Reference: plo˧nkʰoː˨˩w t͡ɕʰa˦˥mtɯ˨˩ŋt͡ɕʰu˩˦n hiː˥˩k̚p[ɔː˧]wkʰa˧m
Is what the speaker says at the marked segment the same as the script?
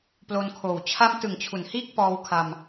yes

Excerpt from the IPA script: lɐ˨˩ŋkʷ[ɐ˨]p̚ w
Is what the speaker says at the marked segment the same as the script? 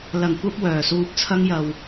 no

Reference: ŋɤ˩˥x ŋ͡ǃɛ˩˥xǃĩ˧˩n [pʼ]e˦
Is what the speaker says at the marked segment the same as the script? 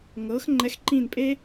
yes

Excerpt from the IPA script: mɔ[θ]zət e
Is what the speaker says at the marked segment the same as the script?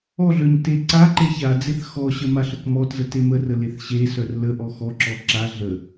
no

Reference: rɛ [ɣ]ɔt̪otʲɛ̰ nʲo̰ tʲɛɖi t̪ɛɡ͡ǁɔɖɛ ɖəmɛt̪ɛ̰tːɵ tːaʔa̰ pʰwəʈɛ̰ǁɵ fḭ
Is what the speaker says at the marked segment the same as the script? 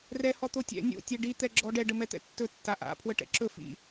no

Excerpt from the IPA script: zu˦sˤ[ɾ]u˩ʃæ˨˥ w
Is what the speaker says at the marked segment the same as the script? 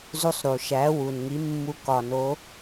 yes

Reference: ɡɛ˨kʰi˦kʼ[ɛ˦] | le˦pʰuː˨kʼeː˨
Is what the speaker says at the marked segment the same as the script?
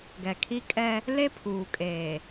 yes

